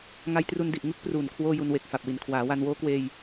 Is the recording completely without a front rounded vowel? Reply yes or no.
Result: yes